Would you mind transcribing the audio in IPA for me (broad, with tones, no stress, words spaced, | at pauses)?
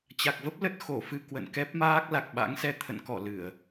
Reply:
t͡ɕa˨˩k̚və˦˥p̚ lə˦˥t̚ xo˧˩fɨ˧ kwə̰˧˨nkɛ˦˥p̚maː˦˥k̚ la˨˩k̚ ɓa̰˧˥ŋsɛ˧ t̪ʰə̰˧˨nkɔ˧˩ lɨ˧˩˨ə̯